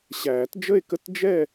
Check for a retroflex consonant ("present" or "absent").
absent